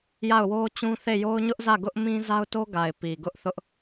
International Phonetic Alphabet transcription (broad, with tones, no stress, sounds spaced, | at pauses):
j a˦˨ ʊ̯ w o˦ t͡ɕ ũ˦ θ e˦˨ j o˦ ʊ̯ ɲ ʊ˦ ʔ z ä˦˨ ɡ ʊ˦ ʔ m ĩ˦ z a˦ ʊ̯ t o˦ ɡ a˨ ɪ̯ p i˨ ɡ ʊ˦ ʔ θ ʊ˦ ʔ